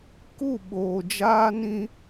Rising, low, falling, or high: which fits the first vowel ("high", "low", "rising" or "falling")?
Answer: falling